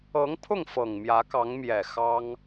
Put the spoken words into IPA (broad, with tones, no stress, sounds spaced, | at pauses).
ɤ˧˥ ŋ pʰ ʊ˥˩ ŋ f ɤ˨˩ ŋ m j ä˧˥ k ɑ˧˥ ŋ m j ɛ˨˩ x ɑ˥ ŋ